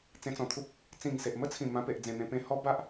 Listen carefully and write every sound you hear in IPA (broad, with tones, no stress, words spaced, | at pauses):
t͡sẽ˧t͡sɔ̃˨˩t̪ʰu˦p̚ | t͡sĩ˨˩ŋse˨ʔmə˦t͡sʰĩ˨˩ mã˧pe˨ʔd͡zẽ˨˩ n̪ẽ˧pẽ˧hɔ˦ ba˦ʔ